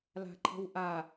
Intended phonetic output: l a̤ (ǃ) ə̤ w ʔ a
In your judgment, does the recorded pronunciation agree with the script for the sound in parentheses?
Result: no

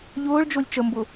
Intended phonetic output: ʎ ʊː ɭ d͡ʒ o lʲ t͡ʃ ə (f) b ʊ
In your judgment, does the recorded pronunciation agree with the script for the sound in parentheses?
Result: no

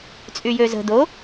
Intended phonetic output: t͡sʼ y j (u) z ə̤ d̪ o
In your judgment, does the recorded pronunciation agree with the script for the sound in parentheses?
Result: no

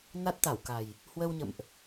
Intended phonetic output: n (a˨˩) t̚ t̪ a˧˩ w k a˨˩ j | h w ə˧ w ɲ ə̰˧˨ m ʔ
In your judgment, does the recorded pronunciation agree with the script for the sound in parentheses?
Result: no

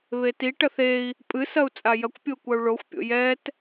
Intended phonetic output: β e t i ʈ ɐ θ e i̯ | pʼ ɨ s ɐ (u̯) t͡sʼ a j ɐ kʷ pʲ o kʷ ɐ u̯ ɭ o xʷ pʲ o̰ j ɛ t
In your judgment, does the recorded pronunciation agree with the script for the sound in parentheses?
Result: yes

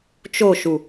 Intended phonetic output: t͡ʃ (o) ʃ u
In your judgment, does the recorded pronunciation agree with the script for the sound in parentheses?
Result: yes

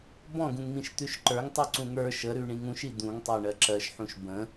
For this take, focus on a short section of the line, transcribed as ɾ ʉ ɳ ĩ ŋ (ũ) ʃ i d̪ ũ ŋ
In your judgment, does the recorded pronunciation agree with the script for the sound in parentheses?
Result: yes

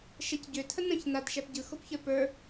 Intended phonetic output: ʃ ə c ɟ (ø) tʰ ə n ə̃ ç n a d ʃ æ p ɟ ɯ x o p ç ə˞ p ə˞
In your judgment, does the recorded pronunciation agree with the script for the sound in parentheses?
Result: yes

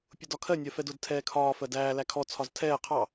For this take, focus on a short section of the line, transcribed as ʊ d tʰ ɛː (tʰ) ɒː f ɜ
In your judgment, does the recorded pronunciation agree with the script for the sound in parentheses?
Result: no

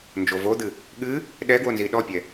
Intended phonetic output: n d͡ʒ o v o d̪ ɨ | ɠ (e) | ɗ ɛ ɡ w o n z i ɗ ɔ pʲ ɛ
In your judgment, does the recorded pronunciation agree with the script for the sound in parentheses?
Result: no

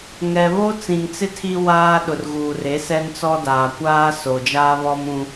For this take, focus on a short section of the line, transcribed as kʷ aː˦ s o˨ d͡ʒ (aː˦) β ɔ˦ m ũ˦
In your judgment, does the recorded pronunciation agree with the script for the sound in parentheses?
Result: yes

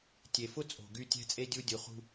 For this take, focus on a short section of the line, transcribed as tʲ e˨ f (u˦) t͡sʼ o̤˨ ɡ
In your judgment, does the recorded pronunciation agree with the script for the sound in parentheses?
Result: no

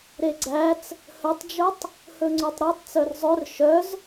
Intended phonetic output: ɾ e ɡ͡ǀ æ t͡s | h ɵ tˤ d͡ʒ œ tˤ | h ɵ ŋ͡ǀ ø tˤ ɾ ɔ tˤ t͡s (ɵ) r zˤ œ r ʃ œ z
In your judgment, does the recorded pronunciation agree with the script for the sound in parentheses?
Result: no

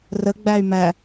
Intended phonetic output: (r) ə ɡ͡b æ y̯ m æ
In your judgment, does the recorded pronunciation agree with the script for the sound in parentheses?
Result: yes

